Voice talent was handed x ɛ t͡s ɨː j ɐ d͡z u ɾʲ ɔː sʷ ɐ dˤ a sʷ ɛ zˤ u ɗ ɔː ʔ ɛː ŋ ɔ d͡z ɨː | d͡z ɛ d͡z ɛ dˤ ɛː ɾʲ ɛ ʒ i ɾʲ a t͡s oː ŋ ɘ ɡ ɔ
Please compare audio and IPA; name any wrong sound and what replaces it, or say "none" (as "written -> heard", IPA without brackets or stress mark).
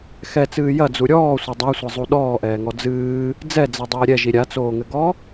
none